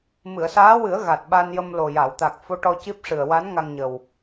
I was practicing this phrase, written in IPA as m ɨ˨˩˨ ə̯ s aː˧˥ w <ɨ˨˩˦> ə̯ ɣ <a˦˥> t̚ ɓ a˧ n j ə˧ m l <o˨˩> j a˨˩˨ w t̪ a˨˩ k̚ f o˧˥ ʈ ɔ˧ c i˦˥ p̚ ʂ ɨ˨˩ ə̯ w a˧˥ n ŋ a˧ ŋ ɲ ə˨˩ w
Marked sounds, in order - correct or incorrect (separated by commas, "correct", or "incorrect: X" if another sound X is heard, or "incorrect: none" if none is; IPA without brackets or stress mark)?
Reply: correct, incorrect: a˨˩, correct